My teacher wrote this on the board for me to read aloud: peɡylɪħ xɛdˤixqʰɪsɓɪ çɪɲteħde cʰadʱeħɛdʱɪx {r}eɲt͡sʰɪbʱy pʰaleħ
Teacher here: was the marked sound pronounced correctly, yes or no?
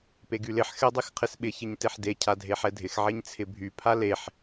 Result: no